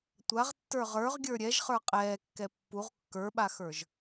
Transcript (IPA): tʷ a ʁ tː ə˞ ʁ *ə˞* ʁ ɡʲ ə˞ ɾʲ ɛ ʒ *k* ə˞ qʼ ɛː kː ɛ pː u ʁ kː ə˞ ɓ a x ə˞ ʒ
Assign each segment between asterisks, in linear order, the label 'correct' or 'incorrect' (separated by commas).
correct, incorrect